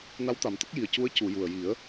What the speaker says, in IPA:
n a˧˥ w t̪ a˨˩ m t̪ ə˦˥ k̚ j i˨˩ ə̯ c u˧˥ ə̯ c u˨˩˨ j u˨˩ ə̯ j i˨˩˦ ə̯

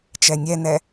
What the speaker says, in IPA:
t͡ʃ ɛ nʲ ɛ n ɛ

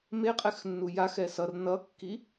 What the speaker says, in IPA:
m e qʼ ɛ x nː u j a x ɛ s ʌ r n ʌ kː i

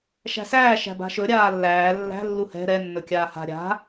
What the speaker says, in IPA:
ʃ æ̤ s æː ʃ æ̤ b a̤ ʃ ɵ ɾʲ aː lː æː lː æ̤ lː u h ɛ̤ ɾ ɛ nː ɵ kʲ aː h a̤ ɾʲ a̤

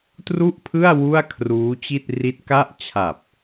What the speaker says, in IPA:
t r u˥˩ ʔ pʰ ɯ˥˩ a̯ w u˥˩ a̯ kʰ r uː˦˥ t͡ɕ i˥˩ t̚ r i˦˥ t̚ k a˥˩ ʔ t͡ɕʰ a˨˩ p̚

